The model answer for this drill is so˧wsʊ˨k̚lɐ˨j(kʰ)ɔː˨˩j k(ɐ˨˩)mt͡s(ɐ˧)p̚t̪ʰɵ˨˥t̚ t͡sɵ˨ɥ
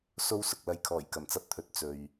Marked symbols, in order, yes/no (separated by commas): yes, yes, yes